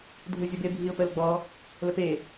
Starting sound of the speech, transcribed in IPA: dʱ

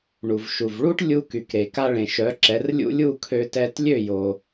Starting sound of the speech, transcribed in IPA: ɳ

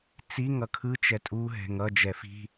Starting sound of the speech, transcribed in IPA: t͡s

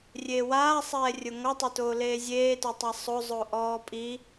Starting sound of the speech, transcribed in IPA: rʲ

